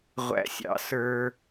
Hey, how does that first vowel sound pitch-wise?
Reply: high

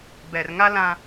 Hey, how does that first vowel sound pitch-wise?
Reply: low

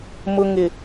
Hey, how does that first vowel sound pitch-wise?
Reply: low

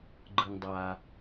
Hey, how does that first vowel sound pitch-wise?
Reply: low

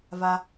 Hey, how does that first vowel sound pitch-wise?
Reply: high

